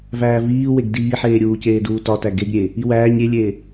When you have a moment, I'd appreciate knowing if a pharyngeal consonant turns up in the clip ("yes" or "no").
yes